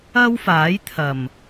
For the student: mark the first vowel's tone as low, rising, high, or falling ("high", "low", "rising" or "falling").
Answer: high